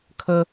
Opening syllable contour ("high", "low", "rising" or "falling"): high